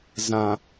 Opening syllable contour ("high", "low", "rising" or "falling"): low